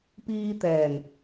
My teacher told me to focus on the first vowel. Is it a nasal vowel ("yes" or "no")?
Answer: no